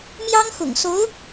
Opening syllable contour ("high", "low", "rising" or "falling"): high